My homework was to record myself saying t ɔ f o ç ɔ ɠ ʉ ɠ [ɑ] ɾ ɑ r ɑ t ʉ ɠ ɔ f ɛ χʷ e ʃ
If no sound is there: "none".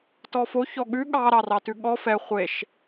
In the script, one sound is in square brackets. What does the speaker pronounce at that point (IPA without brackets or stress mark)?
ɑ